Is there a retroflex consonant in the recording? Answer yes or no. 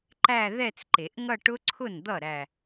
yes